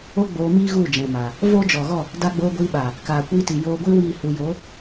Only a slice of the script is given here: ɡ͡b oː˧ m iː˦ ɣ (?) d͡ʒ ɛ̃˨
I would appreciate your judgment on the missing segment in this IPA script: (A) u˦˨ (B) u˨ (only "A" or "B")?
A